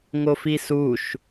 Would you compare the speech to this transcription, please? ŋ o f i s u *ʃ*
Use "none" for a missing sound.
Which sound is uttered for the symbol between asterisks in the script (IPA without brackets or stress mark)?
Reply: ʃ